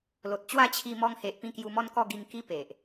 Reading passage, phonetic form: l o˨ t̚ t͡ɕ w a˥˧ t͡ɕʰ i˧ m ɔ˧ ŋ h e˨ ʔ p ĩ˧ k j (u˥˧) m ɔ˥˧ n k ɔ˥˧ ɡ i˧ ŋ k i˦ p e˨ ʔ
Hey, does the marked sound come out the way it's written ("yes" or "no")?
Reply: no